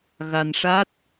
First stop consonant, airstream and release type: plain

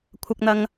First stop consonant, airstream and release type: aspirated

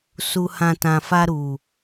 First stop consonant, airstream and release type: plain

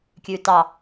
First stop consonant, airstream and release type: plain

